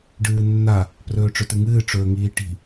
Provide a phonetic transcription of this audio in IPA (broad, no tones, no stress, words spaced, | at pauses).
ɖɨːnːa | prɵːʈ͡ʂɵtɨŋɨː ʈ͡ʂɵːŋiːʈi̤